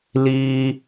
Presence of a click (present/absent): absent